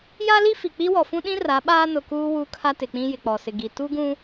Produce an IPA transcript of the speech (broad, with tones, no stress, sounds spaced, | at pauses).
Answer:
j a˦ l i˦ f i˨ k͡p i˦ w ɔ˨ f ũ˦ ɗ ĩ˦ r a˨˦ ɓ aː˦ n ʊ˨ k uː˦ w u˦ kʰ a˦ t ɪ˨ k͡p ĩ˦ j ɪ˨ k͡p ɔ˨ s ɪ˨ ɡ i˨ t u˦ ɡ ũ˦